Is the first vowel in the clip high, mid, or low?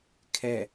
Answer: mid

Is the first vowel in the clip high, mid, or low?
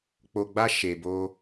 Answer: mid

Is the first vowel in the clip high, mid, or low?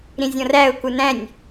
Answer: high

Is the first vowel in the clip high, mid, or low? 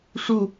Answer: high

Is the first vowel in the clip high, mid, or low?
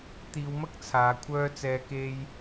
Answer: high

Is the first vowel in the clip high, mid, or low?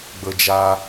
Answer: mid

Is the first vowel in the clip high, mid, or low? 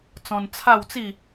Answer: mid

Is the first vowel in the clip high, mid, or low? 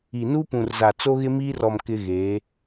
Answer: high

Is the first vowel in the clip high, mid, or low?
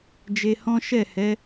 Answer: mid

